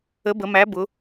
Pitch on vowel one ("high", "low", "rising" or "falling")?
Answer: rising